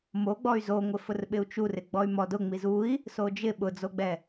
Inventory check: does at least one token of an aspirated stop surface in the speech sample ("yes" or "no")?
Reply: no